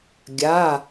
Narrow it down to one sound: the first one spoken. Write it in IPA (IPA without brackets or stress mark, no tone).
ɡʲ